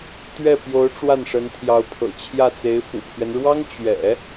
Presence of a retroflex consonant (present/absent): present